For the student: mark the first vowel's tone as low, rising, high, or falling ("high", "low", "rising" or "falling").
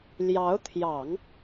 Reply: rising